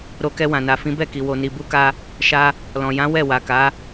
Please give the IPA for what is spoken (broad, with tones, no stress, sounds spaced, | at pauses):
ɾ o˧ k ɛ˧ w ã˨ n a˨ f ĩ˨˦ b ɛ˦˨ k i˨ w o˨ n i˨ b u˧ k a˧ | ʃ a˦ | l ɔ̃˨ j ã˨˦ w ɛ˦˨ w a˨ k a˨˦